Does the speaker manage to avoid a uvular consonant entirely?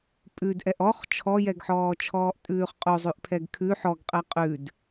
no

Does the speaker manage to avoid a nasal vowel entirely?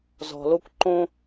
no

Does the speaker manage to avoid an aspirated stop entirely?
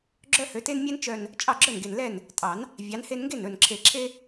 no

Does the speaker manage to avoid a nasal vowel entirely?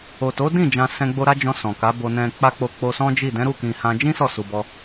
no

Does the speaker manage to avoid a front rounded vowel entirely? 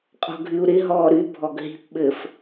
no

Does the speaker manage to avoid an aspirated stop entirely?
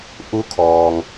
no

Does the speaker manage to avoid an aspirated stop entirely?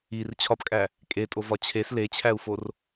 no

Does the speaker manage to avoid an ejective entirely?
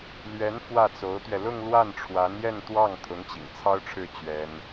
yes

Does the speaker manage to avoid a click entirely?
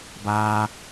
yes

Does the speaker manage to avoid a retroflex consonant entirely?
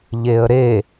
yes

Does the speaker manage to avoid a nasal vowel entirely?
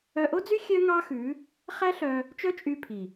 yes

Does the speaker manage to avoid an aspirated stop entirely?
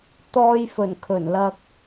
no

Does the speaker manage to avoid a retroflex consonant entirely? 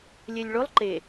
no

